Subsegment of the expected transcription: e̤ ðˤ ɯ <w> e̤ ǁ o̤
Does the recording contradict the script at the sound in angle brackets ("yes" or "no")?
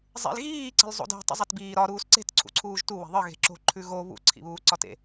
yes